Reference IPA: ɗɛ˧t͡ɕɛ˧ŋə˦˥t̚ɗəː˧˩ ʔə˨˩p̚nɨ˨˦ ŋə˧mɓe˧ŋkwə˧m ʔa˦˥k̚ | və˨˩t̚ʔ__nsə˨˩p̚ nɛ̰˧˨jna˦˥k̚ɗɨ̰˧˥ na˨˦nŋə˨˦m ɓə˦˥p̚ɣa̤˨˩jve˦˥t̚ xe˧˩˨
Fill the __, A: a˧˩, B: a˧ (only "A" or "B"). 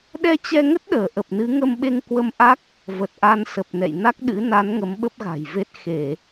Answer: B